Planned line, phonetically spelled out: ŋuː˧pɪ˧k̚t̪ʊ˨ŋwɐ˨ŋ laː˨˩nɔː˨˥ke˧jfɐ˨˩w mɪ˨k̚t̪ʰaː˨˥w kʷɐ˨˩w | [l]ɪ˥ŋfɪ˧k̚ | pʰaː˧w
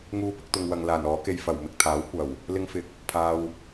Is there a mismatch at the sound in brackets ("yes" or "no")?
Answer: no